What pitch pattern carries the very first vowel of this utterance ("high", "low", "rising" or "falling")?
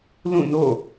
falling